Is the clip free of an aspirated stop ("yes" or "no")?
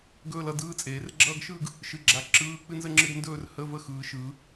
yes